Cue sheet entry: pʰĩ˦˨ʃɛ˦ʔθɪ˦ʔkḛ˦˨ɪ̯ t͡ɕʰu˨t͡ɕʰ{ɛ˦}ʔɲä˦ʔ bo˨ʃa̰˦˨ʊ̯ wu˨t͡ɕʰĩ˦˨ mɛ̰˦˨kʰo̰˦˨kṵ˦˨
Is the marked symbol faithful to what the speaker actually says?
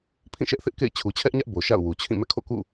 yes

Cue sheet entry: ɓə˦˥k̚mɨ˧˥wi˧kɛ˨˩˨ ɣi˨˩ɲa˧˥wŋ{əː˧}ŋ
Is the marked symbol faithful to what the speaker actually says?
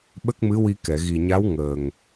no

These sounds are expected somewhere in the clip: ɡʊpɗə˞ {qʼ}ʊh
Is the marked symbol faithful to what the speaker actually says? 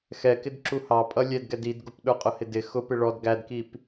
yes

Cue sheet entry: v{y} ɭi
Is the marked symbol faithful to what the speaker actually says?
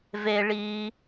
no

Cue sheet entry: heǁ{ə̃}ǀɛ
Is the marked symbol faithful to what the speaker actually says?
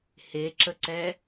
no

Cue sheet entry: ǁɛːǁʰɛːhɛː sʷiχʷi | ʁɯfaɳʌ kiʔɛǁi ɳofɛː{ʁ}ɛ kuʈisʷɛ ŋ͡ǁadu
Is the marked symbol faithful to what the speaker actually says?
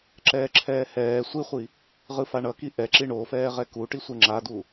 yes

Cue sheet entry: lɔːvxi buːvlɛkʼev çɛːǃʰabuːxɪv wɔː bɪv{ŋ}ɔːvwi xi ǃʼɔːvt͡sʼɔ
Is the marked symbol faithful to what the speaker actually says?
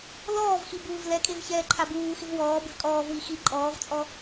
no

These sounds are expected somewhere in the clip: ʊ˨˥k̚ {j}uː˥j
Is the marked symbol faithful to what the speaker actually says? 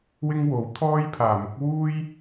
no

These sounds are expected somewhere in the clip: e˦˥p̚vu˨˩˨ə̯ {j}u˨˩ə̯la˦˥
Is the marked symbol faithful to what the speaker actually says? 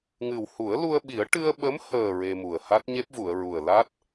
no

